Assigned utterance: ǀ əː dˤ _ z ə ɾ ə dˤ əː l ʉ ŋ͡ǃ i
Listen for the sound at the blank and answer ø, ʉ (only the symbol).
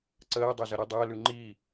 ø